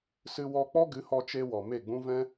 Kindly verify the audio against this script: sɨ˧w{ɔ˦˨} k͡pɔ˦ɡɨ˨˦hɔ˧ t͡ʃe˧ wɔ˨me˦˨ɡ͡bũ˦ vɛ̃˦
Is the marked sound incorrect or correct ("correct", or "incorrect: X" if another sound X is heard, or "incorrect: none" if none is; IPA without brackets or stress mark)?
incorrect: ɔ˧